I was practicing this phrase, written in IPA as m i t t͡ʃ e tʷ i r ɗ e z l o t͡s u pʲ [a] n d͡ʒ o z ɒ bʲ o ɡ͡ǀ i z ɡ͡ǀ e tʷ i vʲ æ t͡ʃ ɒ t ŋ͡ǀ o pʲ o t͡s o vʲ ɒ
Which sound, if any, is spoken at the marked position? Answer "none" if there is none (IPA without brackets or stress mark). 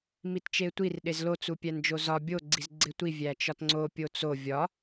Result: æ